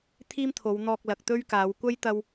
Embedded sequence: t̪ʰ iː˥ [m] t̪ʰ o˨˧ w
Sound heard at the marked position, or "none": m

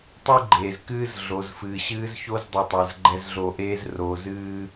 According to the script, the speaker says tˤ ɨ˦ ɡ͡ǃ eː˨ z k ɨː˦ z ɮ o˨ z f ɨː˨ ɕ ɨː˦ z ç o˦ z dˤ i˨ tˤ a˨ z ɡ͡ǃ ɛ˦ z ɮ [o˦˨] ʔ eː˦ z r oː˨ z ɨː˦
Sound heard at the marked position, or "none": o˦˨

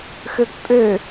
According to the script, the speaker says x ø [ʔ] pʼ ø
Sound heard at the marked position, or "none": k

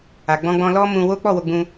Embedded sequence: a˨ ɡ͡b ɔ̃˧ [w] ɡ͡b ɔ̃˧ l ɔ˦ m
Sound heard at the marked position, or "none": none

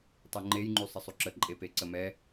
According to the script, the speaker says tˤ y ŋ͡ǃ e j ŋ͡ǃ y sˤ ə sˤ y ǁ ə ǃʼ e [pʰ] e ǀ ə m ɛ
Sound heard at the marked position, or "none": p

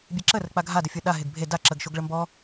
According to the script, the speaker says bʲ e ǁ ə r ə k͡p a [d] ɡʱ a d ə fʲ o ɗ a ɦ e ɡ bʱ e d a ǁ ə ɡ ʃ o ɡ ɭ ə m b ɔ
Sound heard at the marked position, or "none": none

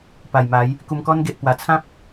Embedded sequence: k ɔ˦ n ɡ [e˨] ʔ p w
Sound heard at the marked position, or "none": e˨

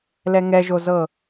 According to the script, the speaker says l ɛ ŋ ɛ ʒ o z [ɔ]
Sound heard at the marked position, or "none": ɤ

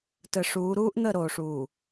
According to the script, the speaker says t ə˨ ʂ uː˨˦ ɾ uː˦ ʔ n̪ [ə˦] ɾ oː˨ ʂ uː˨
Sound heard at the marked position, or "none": ə˦˨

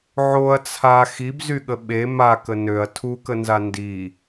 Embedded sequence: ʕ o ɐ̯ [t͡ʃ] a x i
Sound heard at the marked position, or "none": t͡sʰ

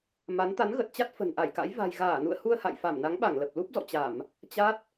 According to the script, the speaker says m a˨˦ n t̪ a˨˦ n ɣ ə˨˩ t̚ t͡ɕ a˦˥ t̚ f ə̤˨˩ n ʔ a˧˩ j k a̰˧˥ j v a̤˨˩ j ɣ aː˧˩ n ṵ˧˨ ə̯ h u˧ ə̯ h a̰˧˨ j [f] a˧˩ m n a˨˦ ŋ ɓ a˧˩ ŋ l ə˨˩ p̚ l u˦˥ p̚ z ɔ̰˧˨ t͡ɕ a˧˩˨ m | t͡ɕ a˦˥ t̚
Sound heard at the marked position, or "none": f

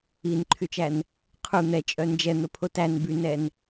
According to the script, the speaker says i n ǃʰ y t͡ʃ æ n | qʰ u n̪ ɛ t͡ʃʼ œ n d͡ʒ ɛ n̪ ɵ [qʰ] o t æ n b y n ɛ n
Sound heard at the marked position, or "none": pʰ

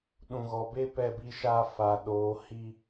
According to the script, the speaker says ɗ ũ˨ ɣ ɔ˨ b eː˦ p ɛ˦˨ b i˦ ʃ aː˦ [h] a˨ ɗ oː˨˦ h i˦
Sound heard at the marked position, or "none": f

